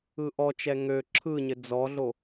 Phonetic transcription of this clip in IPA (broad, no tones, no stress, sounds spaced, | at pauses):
ɯ ʔ ɔ t͡ʃ ɛ ŋ ø ǁʰ ɯ ɲ ɘ d͡z ɔ ɮ o